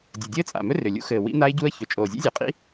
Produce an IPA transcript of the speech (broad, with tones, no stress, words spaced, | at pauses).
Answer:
dʲɘ˨˩dʲɘː˦˥t͡sʼa̰˨˩mɵ˦˥ rʏ˨˩lʲṵ˦˥ xɘː˨˩ wḭ˦˥na˦˥ɪ̯ɟu˦˥ə̯çɵ˨˩ t͡ʃʼoː˨˩zʲḛ˦˥zʲɛ˨˩qʼḭ˦˥